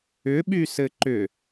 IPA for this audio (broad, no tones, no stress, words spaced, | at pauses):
ʏɓysɘ ǃʏ